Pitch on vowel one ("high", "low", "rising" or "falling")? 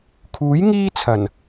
rising